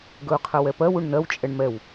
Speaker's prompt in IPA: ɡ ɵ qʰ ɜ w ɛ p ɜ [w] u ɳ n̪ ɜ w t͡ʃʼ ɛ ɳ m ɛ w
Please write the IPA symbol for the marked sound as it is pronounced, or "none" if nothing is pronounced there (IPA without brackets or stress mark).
w